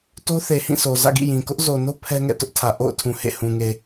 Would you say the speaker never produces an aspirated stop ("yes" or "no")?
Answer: no